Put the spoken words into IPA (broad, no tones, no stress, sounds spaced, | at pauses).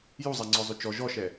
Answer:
j u zˤ a ŋ͡ǀ ɔ zˤ ø t͡ʃ ɔ ʒ ɔ ʃ ɛ